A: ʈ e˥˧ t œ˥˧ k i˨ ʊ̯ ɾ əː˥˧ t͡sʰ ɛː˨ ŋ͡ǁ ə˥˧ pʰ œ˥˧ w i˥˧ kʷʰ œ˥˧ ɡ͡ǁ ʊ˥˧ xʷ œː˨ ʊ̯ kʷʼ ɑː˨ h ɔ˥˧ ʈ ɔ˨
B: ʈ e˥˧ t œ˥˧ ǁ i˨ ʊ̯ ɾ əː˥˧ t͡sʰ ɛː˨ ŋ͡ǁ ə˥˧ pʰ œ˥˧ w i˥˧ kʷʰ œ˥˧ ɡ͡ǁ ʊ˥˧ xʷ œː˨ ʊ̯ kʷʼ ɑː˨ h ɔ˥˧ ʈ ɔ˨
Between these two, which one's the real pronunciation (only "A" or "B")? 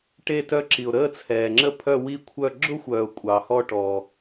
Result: B